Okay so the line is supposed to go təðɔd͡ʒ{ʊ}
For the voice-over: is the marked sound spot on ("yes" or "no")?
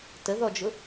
yes